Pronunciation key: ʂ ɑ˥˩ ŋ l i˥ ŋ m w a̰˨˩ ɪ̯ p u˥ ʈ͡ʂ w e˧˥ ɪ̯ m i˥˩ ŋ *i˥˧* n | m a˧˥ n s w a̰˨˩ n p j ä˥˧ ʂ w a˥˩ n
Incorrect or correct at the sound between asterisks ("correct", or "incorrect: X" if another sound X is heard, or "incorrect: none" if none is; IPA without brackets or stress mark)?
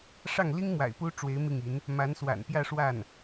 incorrect: i˧˥